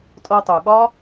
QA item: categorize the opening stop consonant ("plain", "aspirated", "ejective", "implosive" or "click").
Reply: ejective